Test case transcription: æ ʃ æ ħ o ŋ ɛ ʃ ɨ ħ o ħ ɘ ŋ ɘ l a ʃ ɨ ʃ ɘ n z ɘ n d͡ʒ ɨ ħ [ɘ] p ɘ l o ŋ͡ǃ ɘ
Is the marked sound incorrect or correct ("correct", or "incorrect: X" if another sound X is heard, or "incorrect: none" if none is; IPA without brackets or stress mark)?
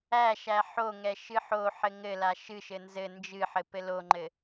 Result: correct